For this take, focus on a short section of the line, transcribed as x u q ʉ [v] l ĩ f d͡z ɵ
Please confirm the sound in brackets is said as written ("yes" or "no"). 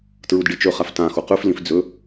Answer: no